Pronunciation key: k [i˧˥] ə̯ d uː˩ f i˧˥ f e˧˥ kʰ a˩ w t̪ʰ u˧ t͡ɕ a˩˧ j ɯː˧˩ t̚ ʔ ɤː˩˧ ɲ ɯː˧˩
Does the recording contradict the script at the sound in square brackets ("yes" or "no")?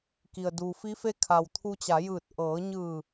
yes